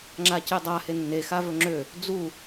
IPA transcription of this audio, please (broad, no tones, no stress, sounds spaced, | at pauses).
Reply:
ŋ͡ǁ a c e dˤ a h e nː e x a v ɵ ŋ͡ǁ ø | d͡z u